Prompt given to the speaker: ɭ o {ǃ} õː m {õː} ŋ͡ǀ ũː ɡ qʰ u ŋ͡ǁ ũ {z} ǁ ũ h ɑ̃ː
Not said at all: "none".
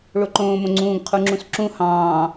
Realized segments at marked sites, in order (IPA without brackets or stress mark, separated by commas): ǃ, õ, s